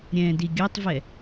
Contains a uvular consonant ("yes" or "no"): no